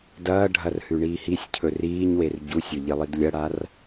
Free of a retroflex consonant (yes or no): no